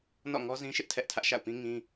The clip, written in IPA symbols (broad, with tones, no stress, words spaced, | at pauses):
nɔ̰˦˨ŋɔ˦zĩ˦ʃɪ˦ʔ tʰɛ˦ʔtʰä˦ʔ ʃa̰˦˨ʊ̯pĩ˦ ŋĩ˦